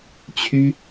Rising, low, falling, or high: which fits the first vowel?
high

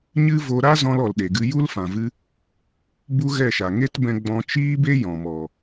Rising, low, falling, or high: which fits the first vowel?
high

